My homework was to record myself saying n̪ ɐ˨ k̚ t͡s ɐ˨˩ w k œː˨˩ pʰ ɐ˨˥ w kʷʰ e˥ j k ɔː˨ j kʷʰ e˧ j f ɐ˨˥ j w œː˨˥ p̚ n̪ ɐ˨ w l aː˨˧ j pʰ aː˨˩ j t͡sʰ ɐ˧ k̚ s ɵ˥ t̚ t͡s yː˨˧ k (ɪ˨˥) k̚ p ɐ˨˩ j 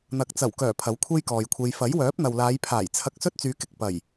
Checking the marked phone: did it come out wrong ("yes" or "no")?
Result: yes